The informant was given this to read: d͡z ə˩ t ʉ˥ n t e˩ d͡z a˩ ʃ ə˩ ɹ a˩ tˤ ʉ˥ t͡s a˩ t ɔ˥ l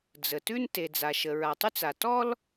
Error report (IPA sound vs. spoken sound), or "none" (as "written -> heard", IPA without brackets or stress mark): none